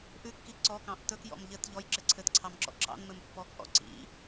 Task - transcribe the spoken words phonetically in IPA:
ʔ ʉ kː i ǀ ɔ k ɑ̃ ʔ t ɵ k j ɔ̰ m ʎ ɘ t ʎ ɔ j ǁ ɘ ǀʰ ɘ t ǀʰ ɑ m ǁ ɔ̰ ǁ ɑ̰ n m ɘ m pː ɔ k ʔ ɔ̰ ǀ ḭ

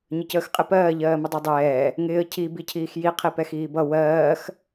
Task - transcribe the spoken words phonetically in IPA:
ɲ ə c əː x qʼ ɪ p ɜː ʎ ɜː m ə dˤ i dˤ ɛː | ŋ ɪː ə̯ cʰ i b i cʰ iː x j i qʰ i p ɛ x iː b ʌ w ɜː x

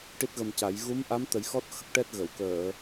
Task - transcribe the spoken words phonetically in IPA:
ʈ i˦˥ t̚ ɣ ə˧ m c a˨˩˦ j ɣ u˧˥ m ʔ a˧˥ m t̪ ə˨˩˦ j x ɔ˦˥ t̚ x ə˦˥ k̚ ʈ ɛ˦˥ t̚ ɣ ə˨˩˨ w k əː˨˩˨

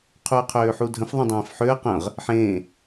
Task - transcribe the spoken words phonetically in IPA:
qʰ u ə̯ qʰ øː ħ u dʱ ə̃ f ðˤ ə̃ dˤ ẽː f ħ ø ə̯ q ə̃ ʁ | ħ ẽː

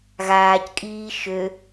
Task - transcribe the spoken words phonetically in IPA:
ɣ aː c kʼ iː ʃ ø

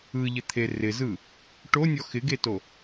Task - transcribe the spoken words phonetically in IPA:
ɯ ʎ ɪ t̪ʰ e r ɪ z ɯ | ʈ o nʲ ɔ x ɪ ɡ e t o

